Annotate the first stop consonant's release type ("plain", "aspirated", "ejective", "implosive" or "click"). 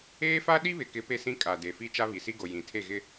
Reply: implosive